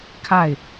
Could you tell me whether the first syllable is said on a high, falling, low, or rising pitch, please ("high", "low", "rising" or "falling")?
falling